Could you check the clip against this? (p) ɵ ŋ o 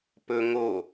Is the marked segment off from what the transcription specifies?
no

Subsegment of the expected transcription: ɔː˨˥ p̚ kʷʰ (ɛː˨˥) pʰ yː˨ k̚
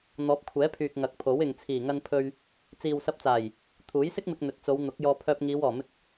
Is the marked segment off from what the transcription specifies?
no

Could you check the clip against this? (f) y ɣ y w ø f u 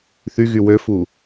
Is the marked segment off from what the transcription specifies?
yes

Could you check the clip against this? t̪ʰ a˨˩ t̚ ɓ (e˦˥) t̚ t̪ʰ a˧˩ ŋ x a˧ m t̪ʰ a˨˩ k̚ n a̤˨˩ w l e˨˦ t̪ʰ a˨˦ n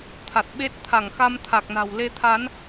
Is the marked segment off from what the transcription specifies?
no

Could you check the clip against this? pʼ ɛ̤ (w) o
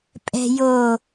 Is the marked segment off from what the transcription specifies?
yes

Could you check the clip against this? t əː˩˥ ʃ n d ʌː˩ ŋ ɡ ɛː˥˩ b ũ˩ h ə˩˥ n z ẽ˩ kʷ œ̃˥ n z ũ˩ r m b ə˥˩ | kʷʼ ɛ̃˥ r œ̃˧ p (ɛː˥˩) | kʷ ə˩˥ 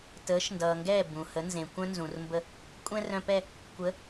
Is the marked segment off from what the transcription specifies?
yes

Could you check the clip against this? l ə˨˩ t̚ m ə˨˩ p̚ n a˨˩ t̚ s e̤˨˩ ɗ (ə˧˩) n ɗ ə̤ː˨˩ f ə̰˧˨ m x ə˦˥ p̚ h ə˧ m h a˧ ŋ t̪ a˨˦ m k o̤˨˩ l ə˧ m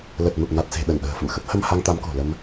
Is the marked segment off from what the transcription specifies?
no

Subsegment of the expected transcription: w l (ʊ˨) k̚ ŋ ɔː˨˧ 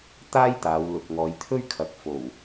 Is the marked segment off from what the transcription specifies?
no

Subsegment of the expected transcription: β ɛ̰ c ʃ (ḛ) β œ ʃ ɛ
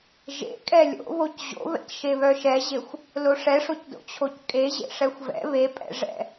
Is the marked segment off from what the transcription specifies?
yes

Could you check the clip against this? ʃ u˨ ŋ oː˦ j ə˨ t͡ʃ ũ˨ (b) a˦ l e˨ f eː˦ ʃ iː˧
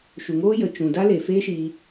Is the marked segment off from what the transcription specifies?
yes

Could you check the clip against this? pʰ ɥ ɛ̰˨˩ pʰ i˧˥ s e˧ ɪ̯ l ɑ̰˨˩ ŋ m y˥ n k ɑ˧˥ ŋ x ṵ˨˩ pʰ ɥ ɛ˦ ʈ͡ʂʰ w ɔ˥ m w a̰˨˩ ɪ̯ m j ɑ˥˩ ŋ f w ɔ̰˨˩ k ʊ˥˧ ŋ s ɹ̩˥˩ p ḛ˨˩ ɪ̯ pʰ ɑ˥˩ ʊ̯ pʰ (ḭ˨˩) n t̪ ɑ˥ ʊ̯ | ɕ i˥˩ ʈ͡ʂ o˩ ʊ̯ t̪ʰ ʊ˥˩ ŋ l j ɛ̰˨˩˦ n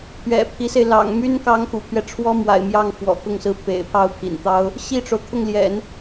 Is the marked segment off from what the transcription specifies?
no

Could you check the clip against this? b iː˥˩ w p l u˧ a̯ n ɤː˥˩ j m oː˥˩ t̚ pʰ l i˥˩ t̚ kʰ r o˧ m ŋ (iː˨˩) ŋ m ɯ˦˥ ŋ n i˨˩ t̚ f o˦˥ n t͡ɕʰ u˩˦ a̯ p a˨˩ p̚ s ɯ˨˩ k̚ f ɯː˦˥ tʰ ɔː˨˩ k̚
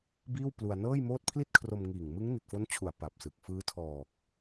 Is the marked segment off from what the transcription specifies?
no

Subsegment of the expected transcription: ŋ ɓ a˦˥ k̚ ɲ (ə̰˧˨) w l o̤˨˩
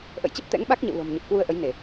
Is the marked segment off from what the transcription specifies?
no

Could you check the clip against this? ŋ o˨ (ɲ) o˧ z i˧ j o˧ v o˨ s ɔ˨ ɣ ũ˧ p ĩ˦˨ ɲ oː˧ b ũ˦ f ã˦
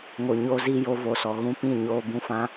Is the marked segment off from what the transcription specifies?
no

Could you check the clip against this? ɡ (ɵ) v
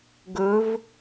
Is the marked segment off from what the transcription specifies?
no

